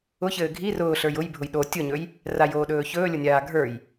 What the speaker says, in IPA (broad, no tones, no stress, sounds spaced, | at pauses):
ʊ ç ɘː ɡʱ i r ʊː ɬ ə˞ j ʊ j bʱ ʊ j ɗ o tʲ ʊ ɲ ɵ j | r a j oː ɗ ɵː ç ɵː lʲ ʊ nʲ aː ɡʱ ə˞ j